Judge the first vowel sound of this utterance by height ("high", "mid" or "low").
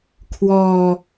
mid